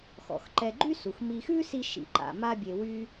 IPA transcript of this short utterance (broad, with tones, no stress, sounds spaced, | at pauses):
x ɔ̰˩ x ǃ ɛ˨ ɡ͡ǃ y˦ s u˩ x m i˨ x ʉ˦ s i˦ ʃ ḭ˩ ǃ a̰˩ m a˦ bʲ e˨ w y˥